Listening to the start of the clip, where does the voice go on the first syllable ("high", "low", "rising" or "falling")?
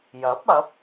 rising